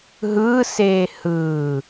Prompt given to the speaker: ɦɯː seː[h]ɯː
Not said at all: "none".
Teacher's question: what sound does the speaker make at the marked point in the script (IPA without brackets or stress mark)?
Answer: h